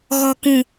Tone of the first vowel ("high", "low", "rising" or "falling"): low